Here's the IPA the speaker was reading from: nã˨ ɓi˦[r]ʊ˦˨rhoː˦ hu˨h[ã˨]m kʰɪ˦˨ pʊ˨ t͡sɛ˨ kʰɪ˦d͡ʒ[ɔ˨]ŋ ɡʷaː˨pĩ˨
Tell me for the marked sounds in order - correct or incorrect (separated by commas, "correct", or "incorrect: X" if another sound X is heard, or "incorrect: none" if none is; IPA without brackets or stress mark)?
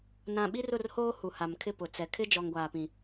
correct, incorrect: a˨, correct